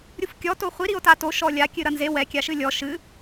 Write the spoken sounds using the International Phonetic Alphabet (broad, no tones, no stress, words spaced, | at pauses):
ɾʲufkʲɔ toχʷi ɾio̯tato ʃɔlʲa kʲɨɾɐnze wɛ kʲaʃɨlʲɔ ʃɨ